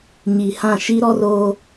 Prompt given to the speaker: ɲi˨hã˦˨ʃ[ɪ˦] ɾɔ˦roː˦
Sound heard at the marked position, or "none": i˦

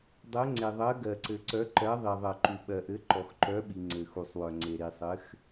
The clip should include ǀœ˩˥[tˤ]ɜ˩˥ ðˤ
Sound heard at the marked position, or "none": ǃ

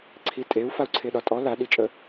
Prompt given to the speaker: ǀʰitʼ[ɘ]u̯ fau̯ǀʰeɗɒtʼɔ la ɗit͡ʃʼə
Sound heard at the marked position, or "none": e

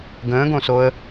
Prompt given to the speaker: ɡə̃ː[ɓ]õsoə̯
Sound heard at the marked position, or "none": ɡ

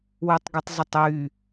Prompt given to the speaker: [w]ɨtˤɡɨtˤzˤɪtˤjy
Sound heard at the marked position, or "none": w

